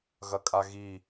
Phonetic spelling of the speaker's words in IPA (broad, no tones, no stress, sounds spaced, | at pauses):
ɣ ɐ kʼ a ɣ i